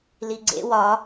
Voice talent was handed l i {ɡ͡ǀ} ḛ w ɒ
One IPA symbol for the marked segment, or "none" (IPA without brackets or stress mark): ɡ͡ǀ